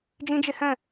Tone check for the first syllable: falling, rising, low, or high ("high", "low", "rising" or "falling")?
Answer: high